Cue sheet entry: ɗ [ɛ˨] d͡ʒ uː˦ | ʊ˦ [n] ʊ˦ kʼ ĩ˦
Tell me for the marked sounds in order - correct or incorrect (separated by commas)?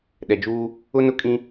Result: correct, correct